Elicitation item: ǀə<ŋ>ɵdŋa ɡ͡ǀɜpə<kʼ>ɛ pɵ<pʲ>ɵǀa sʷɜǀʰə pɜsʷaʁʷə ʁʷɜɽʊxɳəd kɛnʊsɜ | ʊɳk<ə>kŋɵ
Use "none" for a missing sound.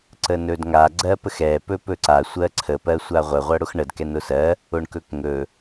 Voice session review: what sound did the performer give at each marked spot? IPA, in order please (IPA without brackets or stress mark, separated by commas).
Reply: n, x, p, ɵ